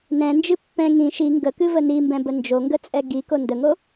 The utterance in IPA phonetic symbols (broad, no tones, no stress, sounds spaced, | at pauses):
n ɛ̃ n d͡ʒ ɨ pː ɛ̃ ŋ ĩ ʃ i ŋ ɡ ə k ɨ v ə n i m b ɛ̃ b ə n d͡ʒ o ŋ ɡ ə t͡sʼ ɛ ɡ i k o n d ə ŋ o